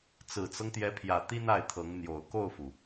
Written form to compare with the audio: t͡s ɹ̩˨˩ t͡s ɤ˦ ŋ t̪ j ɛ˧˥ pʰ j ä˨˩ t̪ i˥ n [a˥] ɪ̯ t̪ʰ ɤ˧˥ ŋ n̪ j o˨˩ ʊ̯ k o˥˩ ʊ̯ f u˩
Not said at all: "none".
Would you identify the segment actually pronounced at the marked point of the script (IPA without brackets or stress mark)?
a˥˩